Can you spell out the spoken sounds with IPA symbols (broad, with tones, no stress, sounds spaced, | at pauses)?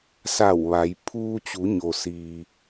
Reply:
s a˧˩ w ʋ a˩˧ j pʰ uː˧ t͡ɕ u˩˧ ɲ o˩ s iː˩